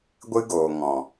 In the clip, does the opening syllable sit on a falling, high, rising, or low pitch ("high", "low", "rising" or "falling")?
high